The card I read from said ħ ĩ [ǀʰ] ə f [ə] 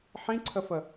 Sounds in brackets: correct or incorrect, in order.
correct, correct

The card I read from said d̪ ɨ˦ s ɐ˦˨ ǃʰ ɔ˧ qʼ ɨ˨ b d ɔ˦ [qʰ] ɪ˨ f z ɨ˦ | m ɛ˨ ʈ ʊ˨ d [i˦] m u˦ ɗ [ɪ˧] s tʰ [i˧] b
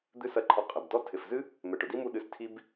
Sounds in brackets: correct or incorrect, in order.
incorrect, correct, incorrect, correct

